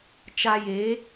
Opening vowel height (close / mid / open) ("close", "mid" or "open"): open